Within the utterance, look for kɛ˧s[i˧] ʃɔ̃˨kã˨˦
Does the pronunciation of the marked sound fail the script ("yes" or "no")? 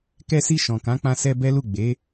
no